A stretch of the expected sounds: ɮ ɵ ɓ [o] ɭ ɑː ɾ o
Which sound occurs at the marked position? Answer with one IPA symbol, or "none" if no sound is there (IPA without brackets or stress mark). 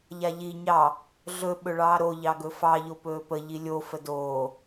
ɵ